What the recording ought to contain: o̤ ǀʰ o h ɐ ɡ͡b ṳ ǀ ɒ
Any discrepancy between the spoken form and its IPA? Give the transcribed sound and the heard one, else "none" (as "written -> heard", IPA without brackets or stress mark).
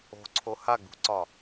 ɐ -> a